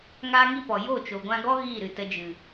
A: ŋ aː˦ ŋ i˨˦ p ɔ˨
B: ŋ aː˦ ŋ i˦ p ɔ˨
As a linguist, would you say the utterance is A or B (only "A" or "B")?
B